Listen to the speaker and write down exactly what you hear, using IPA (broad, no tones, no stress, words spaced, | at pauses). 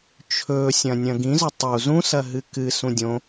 t͡ʃʰɵsʲɐ̃ nʲɐ̃ɡĩzɵ tˤu zũsɐɦɨ kɨ sũdʲõ